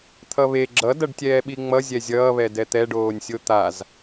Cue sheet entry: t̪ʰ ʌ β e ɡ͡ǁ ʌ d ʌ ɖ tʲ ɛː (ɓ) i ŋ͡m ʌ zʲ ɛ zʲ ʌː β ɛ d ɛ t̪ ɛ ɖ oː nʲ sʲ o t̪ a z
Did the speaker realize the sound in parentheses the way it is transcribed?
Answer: yes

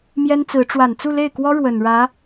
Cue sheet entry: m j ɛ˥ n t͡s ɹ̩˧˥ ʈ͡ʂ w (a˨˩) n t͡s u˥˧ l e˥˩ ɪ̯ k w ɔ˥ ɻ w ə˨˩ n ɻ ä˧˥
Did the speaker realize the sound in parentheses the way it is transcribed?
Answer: yes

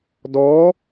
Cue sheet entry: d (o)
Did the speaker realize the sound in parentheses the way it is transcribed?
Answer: no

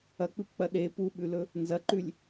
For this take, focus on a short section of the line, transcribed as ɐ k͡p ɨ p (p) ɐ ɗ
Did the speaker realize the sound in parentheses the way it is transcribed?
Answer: no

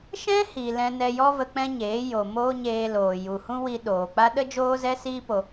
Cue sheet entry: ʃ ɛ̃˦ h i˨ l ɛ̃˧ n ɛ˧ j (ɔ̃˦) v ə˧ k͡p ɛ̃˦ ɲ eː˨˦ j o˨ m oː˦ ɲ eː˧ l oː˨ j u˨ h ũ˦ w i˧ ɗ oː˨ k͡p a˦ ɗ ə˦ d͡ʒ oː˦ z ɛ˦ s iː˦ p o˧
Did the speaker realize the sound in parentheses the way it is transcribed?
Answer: no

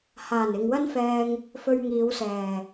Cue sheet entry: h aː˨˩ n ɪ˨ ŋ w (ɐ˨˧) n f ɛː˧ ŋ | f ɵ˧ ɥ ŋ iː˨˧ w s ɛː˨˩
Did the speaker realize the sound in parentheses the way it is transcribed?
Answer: no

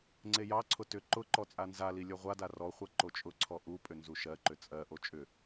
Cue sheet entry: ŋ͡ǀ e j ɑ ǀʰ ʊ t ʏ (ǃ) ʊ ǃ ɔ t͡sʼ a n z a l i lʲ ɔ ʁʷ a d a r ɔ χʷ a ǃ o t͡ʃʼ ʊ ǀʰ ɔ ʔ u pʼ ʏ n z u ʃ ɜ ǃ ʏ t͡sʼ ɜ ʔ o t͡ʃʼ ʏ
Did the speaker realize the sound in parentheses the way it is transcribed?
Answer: yes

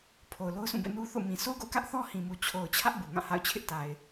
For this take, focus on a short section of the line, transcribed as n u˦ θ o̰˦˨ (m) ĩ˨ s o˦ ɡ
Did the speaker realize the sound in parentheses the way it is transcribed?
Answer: yes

